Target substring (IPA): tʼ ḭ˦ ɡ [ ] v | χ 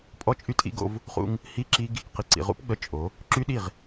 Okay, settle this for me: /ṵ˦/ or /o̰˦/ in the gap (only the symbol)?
o̰˦